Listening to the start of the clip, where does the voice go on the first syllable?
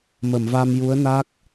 low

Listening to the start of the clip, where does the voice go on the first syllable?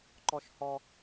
high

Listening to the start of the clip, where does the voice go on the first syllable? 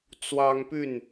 high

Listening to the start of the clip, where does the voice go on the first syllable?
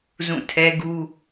falling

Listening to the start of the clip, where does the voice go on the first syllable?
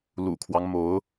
low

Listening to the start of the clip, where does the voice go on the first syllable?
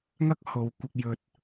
high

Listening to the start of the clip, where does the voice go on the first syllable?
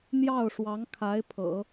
falling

